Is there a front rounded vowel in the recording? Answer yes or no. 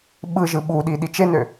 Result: yes